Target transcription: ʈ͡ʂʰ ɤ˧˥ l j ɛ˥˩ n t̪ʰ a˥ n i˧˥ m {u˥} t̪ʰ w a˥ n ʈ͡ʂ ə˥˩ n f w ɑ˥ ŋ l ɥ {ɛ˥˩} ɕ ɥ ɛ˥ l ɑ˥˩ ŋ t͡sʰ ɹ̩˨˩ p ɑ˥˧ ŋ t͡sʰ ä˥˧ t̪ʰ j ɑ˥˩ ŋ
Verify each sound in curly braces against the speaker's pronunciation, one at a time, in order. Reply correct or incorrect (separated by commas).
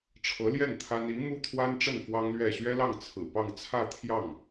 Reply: correct, correct